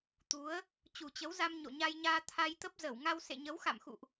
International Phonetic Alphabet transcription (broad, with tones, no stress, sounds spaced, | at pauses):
t̪ u˨˦ ə̯ | t͡ɕ u˨˩ t͡ɕ ə˨˦ w z a˧ m ɲ o̰˧˨ ɲ a˧ j ɲ aː˧ t̪ʰ a˧ j t̪ ə˦˥ p̚ z ə˧˩ w ŋ a˧ w s ḛ˧˨ ɲ ə˨˦ w x a̰˧˨ m x ṵ˧˨ ʔ